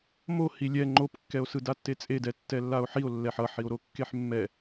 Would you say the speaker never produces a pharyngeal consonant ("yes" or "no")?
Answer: no